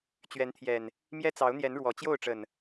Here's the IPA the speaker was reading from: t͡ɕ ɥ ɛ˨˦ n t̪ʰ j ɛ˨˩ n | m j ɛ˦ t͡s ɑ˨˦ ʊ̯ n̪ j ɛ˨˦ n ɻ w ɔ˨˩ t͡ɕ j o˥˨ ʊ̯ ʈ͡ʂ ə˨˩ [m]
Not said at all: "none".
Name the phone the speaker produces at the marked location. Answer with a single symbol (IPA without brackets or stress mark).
n